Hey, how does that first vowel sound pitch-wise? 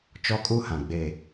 high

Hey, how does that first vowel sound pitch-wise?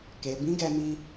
low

